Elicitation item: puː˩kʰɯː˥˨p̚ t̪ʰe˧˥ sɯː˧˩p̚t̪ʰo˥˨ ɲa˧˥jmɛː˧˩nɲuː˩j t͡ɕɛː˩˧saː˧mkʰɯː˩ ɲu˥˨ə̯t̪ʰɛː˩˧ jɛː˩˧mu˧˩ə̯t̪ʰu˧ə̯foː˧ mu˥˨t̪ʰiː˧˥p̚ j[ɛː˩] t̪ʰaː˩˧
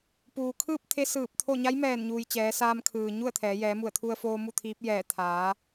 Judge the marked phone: incorrect: ɛː˧˩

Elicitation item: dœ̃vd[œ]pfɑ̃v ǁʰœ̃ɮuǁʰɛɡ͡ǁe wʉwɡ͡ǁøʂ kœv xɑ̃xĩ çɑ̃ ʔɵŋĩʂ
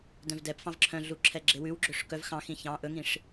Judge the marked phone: incorrect: ɛ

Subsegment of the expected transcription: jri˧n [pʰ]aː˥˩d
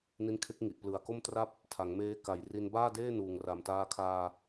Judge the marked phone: incorrect: b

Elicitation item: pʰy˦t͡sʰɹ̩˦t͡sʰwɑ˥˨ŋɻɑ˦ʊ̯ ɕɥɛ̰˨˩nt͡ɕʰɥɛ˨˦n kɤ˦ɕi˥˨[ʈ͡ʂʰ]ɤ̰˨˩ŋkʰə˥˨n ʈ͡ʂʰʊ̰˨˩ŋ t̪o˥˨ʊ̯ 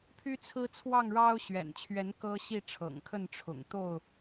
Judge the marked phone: correct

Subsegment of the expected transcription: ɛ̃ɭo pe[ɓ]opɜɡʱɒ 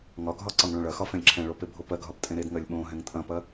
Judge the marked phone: incorrect: bʱ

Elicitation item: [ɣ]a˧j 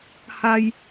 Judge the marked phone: incorrect: h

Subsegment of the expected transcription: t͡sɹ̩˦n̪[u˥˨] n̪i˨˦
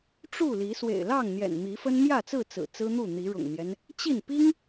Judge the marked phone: correct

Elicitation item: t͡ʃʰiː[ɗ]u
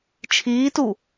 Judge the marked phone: incorrect: t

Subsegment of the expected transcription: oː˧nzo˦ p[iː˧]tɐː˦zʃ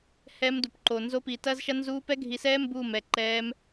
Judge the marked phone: correct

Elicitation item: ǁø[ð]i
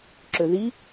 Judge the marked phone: correct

